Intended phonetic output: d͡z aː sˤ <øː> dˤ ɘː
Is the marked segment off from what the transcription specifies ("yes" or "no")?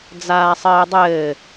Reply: yes